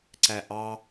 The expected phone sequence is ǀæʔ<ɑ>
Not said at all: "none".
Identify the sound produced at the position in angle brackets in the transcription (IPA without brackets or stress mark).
ɑ